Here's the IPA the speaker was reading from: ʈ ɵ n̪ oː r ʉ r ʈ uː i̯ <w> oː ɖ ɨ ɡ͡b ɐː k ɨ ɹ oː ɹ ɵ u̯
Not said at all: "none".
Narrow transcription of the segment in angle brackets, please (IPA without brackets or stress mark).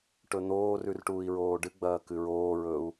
ɹ